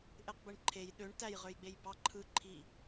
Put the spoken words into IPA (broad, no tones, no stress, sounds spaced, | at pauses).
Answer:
ʔ e q b ɯ ɳ ǃʰ e j ɗ ø ɳ t æ j ʁ ø j ɡ͡b e j b ɑ ǃʰ ɯ ǃʰ i